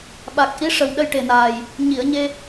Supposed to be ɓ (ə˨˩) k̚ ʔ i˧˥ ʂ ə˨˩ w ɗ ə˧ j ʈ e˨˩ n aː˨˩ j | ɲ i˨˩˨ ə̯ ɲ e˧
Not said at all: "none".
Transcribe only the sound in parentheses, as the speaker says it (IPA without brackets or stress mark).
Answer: a˨˩